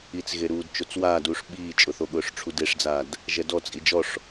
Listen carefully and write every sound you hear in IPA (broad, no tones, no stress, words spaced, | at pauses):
it͡sɣeɾuːd t͡ʃot͡swaːduːʂ ɓiːt͡ʃʼʊθoɠʊːʂ ʈ͡ʂʰudeʂd͡zaːd | ʒɛdɔ t͡sʼid͡ʒɔʂ